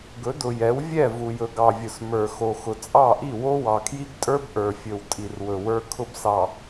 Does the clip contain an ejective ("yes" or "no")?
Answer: yes